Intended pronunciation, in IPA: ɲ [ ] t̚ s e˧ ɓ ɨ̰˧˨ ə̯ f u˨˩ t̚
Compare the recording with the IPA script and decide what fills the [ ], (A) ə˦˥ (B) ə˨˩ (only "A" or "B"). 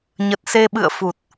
B